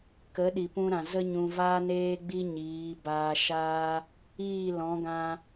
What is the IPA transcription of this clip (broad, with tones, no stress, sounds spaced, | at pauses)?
k ə˨˦ ɗ i˨ p ũ˧ ɾ ã˨ z ə˦ ɲ ũ˧ v aː˦ n eː˦ ɡ͡b i˦ ɲ iː˨˦ b aː˧ ʃ aː˦ | iː˦˨ l ɔ̃˨˦ ɡ ã˧